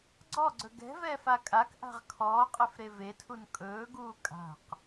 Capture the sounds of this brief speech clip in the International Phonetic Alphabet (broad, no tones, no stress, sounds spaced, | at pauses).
ɡ͡ǀ ɔ ɡ͡ǀ ɵ ɡ ɛ̤ v ɛː f a kʼ a k ʔ a̤ ʁ kʰ ɔː qʼ ɛ f ɾ e v e tʰ u n kʼ ɵː ɡ uː kʼ a̤ q